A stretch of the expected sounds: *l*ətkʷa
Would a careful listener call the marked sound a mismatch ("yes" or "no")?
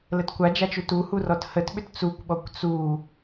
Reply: no